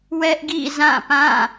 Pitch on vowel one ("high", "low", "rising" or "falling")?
high